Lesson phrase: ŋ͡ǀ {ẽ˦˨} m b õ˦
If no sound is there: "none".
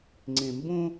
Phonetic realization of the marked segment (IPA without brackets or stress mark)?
ẽ˨